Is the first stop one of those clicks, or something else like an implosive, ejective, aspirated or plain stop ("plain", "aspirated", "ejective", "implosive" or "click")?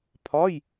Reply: aspirated